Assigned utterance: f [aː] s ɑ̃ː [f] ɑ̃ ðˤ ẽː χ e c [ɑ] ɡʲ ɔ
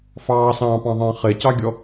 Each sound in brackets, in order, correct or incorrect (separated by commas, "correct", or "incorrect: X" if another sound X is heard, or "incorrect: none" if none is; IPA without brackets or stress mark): incorrect: ɑː, incorrect: p, correct